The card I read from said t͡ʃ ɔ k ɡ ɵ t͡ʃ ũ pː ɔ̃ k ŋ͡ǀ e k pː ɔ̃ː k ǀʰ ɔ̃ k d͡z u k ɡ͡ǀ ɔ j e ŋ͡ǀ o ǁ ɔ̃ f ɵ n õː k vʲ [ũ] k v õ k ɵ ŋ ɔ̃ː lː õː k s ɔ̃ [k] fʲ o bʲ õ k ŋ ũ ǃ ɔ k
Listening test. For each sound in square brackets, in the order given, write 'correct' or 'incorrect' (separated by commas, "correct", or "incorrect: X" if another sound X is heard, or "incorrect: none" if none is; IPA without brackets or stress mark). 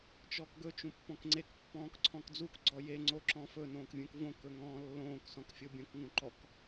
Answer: correct, correct